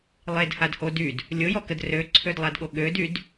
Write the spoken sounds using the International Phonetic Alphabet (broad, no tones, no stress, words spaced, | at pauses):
lˠedhadho dyd | lʲojɔkəd røǀʰødlˠadɠo ɠødyd